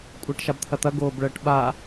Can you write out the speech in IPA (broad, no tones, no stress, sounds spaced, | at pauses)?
kʷʼ əː ʈ ʃ a b t̪ʰ ɐ t̪ ɐ ɡ oː b ɭ əː ʈ ɓ a